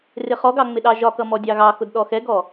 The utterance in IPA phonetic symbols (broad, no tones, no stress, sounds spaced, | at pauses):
r ɪ χ ɔ ɡ ɑ ŋ͡m ɪ ɗ ɑ ʒ ɒ k ʌ m ɔ dʲ ɑ ɣ ɑ x ʊ d ɗ ɔ x ɛ ɡ ɔ